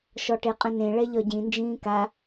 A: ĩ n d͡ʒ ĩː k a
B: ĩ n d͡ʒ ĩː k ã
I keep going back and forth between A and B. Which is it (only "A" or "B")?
A